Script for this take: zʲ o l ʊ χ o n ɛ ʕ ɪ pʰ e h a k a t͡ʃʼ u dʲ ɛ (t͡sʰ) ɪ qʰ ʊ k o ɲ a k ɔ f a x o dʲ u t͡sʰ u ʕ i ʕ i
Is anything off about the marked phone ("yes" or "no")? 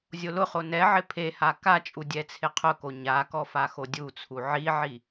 no